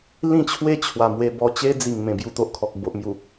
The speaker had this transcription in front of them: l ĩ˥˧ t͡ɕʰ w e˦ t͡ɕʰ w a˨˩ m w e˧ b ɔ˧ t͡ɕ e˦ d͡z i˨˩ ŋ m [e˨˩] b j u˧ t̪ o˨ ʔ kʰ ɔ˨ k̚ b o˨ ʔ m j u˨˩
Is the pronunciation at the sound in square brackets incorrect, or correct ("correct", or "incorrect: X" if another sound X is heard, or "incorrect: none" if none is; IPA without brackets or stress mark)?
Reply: incorrect: ẽ˨˩